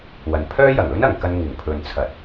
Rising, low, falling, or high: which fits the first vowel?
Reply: low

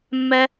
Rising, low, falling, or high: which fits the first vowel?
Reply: high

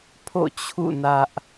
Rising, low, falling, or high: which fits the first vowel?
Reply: falling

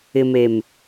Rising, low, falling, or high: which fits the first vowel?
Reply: low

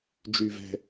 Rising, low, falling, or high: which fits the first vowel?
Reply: low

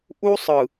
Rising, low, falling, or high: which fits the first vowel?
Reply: high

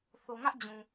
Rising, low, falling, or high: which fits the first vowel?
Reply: low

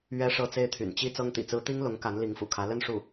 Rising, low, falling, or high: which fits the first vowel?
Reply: high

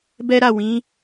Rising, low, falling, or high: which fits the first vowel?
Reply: high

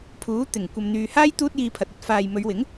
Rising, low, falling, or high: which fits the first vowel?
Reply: rising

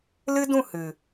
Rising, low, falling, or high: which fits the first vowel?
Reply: high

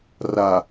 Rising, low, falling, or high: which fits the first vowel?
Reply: low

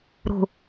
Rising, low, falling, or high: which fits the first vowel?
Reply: low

